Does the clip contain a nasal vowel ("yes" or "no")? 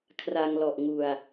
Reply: no